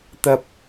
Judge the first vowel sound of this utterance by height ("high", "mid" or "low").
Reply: low